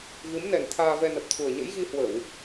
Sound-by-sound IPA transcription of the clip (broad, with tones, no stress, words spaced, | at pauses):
ɣɨ˨˦mnɛ˨˩n t̪ʰaː˧vɛ˧nə˨˩p̚t̪ʰu˨˩ə̯ ɲə̰˧˥jɣi˧hwə˧˩˨w